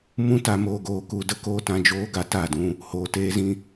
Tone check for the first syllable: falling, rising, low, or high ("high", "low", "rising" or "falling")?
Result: high